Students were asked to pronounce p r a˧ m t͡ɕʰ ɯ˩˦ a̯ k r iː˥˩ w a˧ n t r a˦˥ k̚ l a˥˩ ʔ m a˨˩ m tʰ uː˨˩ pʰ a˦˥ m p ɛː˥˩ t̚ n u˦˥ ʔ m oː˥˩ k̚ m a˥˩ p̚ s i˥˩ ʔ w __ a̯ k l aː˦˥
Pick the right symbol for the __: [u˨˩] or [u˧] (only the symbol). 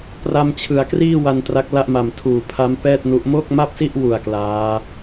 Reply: u˨˩